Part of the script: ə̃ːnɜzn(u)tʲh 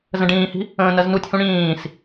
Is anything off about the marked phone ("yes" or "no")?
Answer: no